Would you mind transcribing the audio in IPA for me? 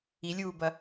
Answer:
i lʲ uː b ɐ

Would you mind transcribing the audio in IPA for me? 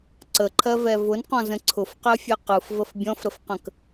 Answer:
ǀ ə ǃʰ ɜ v ɛ v ʊ n q ɔ̃ z ə̃ ǀʰ ʊ f q ɜ fʲ ɛ q ɯ f v ə f bʲ ɔ̃ f ɾ ə f q ə̃ k

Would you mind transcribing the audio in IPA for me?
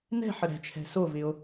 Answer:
n ɛ̤ ħ ə ɾ ɛ̤ t͡ʃʰ ɛ̤ s o v ɪ o̯

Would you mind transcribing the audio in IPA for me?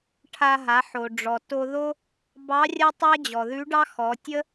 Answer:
ʈʰ a˧ ɦ a˩˧ ħ o˩ ɖ͡ʐ ɔ˩ t o˧ ð o˥ | b ɑ˧˥ rʲ a˥ tˤ a˥ d͡ʑ ɔ˩ ð ʉ˧˥ ɖ ɑ˥ x ɔ˩˧ tʲ ə˥

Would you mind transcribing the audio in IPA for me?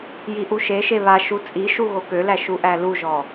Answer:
j i ʔ u ʃ e ʃ e β a ʃ u t͡sʼ i ʃ u ɣ o k ø l æ ʃ u ʔ æ l u ʒ ɔ

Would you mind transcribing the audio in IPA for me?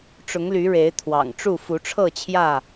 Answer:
ʈ͡ʂ ʊ˨˦ ŋ l y˨˦ ɻ e˨˦ ɪ̯ t̪ʰ w ɑ̰˨˩ ŋ ʈ͡ʂ u˥˨ f u˨˦ ʈ͡ʂʰ ɤ˥˨ t͡ɕʰ j ä˥˨

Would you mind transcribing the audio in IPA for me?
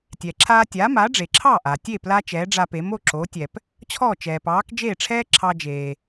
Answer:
tʲ ɛː˩ ǁʰ aː˧ tʲ aː˩˥ m aː˩˥ ɖ͡ʐ e˩ ǁʰ ɑː˥˩ ʔ aː˩ tʲ e˥˩ p l a˥ t͡ʃ ɛː˩˥ ɖ͡ʐ a˧ p e˩˥ m o˧ ǁ o˩˥ tʲ ɛ˩ p | t͡ɕʰ ɔː˥˩ t͡ʃ ɛː˩ p ɑː˩˥ k d͡ʒ eː˥˩ ʈ͡ʂʰ ɛː˥ ǁʰ ɑ˧ d͡ʒ eː˩

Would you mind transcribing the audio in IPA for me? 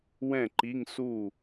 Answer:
w ɛ̃˥˩ ǃ i˧˥˧ ŋ s u˥˩

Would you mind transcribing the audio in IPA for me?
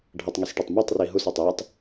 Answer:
ɖʱ ʌ tˤ ŋ e s ʈ ɛ tˤ m a tˤ r i ɦ u s a tˤ j ʌ tˤ

